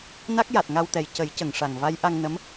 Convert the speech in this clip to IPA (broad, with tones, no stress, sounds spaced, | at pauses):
n a˦˥ k̚ j a˨˩ t̚ ŋ a˧ w t̪ ɛ˨˩ j c ə˨˩˦ j c ə˨˩˨ ŋ ʂ a˨˩ ŋ v a˧˥ j ʔ a˧ ŋ n ə˧˥ m